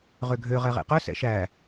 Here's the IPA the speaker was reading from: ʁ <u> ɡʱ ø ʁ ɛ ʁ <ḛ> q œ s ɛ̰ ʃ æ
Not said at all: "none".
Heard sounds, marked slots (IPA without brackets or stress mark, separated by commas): ø, ḛ